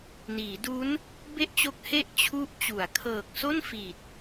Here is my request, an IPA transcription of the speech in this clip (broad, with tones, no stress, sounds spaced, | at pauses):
n iː˩˦ d u˦˥ n | b e˥˩ ʔ t͡ɕ o˦˥ k̚ h e˥˩ ʔ t͡ɕʰ u˦˥ ʔ t͡ɕ u˩˦ a̯ kʰ ɤː˨˩ k̚ s o˥˩ n f i˨˩ t̚